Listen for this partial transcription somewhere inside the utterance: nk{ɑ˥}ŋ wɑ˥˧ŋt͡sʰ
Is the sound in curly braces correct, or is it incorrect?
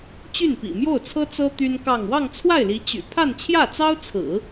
incorrect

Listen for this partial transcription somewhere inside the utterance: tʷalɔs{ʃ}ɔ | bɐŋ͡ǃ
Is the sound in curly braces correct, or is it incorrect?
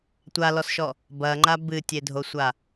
correct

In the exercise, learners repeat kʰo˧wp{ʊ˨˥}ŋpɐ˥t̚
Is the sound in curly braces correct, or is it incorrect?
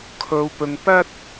incorrect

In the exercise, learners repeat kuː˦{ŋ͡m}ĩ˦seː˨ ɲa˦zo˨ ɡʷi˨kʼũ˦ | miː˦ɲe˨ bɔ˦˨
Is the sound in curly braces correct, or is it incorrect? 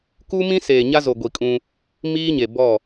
incorrect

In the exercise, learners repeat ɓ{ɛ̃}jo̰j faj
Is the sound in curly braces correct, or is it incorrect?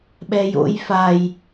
incorrect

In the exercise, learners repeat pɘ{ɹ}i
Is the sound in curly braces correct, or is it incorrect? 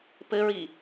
correct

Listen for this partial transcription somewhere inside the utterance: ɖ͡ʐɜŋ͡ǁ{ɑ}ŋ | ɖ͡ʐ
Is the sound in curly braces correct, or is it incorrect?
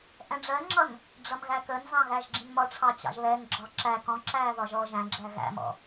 incorrect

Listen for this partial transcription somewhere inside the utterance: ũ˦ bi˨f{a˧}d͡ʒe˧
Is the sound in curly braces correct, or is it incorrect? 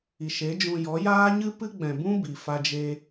correct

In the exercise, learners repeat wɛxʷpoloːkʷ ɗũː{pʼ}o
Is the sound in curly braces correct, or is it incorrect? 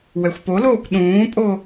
correct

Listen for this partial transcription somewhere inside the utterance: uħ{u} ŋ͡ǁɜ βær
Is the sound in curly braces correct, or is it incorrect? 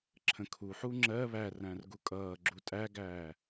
correct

